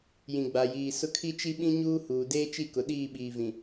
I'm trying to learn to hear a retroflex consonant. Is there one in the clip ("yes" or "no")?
no